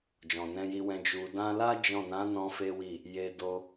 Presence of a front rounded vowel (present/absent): absent